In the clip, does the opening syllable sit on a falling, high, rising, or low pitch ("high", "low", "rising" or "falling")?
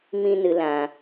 high